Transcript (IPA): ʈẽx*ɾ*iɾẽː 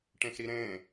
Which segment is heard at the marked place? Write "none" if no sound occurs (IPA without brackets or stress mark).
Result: ɾ